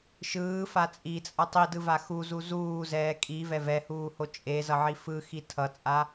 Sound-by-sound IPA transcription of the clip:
ʃ ɯː f a t͡sʼ i t͡sʼ ʌ tˤ i d ɯ v a x u z u z uː z ɛː kʼ i v ɛ v ɛ h uː h o t͡ʃʼ e z ʌ ʕ i f ɯ x i tʰ ʌ t͡sʼ a

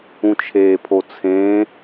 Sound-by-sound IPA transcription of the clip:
ũ t͡ʃʰ eː pʰ o t͡sʰ ẽː

